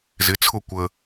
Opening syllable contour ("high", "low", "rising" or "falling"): rising